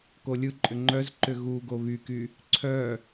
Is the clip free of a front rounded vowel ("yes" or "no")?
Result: no